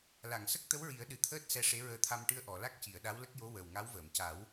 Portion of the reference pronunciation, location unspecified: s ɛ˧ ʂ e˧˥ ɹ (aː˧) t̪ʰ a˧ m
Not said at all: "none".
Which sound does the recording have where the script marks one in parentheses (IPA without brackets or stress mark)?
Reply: əː˧